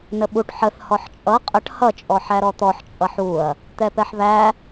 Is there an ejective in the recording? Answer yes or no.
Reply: yes